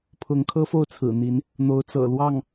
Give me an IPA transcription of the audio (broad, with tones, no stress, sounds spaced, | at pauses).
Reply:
pʰ ʊ˧˥ ŋ kʰ ɤ˥ f o˥˩ ʊ̯ t͡sʰ ɹ̩˨˩ n̪ i˧˥ n | n̪ o˧˥ ʊ̯ t͡s ɤ̰˨˩ l w ɑ˥˩ ŋ